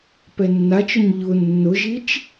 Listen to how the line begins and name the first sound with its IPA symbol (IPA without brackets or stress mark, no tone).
p